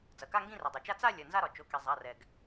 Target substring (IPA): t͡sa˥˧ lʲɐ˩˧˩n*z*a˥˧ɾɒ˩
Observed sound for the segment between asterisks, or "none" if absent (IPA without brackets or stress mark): z